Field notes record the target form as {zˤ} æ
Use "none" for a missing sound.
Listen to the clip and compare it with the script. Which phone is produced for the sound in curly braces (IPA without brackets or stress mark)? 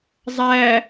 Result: zˤ